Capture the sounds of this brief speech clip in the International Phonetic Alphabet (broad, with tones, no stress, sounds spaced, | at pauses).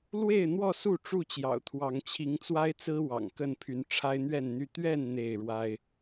l w e˥˨ ɪ̯ n̪ w ɔ˥˨ s u˥˨ ʈ͡ʂ u˥˨ t͡ɕ j ɑ̰˨˩ ʊ̯ t̪ʰ w ɑ˨˦ ŋ t͡ɕʰ i˨˦ ŋ t͡s w a˦ ɪ̯ t͡s ɹ̩˦ w ɑ̰˨˩ ŋ k ə˥˨ n pʰ y˨˦ n ʈ͡ʂʰ a˦ ɪ̯ n̪ ɥ ɛ˥˨ n n̪ y˦ t̪ ɥ ɛ˥˨ n n̪ e˥˨ ɪ̯ ɻ w a˦ ɪ̯